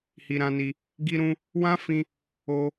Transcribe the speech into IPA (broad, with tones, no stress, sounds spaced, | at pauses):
h i˧ ɾ ã˧ n i˧ | ɡ i˧ ɾ ũ˧ | w ã˦ f ĩ˧ | o˧